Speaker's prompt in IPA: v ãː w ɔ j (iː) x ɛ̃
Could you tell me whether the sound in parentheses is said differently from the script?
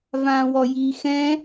no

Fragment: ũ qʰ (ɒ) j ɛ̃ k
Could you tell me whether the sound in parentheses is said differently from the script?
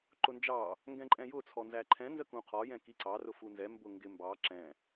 no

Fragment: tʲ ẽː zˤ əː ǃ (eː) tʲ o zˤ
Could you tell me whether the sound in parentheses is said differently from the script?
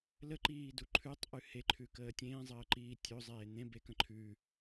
yes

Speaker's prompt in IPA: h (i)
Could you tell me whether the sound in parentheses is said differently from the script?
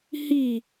no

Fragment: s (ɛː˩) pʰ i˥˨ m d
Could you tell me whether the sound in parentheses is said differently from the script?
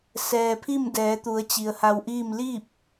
no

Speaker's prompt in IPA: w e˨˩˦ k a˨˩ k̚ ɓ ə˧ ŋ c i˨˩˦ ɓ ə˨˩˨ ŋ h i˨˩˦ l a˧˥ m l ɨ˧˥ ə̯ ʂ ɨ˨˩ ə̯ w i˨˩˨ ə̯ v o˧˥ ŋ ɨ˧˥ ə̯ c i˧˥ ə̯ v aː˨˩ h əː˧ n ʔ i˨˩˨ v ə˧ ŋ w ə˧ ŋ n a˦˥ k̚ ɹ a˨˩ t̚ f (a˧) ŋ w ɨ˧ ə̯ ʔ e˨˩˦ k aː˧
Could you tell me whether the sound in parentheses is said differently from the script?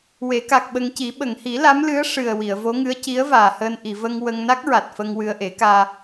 yes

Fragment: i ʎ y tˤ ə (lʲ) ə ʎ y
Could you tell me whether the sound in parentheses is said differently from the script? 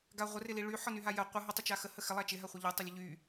no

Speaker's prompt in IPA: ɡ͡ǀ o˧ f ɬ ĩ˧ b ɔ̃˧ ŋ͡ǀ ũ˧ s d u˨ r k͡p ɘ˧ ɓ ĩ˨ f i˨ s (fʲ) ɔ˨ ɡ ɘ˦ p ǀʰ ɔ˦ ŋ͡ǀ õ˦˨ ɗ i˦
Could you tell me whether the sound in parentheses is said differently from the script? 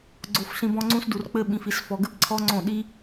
yes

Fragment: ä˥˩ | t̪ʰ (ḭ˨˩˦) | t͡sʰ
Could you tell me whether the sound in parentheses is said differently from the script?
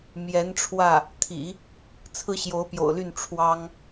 no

